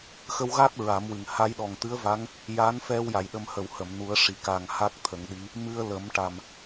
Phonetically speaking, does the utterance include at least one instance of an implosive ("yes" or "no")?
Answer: yes